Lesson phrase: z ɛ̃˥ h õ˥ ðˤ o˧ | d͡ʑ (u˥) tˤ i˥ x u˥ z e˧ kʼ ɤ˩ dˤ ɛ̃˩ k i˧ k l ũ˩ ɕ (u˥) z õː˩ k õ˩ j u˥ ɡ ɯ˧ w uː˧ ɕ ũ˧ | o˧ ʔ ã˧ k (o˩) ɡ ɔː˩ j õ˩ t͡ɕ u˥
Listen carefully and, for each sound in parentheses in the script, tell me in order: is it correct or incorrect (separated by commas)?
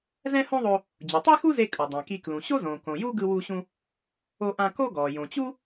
incorrect, incorrect, incorrect